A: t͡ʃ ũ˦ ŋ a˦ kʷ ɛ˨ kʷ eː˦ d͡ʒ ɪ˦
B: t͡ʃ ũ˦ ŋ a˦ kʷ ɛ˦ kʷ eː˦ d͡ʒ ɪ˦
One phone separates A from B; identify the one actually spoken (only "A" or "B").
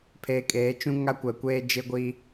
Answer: A